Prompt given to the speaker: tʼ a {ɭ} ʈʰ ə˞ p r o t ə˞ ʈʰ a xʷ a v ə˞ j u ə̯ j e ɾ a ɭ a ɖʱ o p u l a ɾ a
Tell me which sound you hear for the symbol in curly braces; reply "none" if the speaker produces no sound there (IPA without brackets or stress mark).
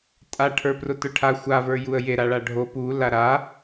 none